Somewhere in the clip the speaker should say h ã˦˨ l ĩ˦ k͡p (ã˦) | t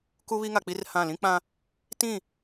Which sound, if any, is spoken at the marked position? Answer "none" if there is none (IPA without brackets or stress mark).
ã˦